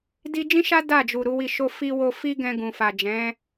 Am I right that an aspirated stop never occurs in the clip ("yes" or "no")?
yes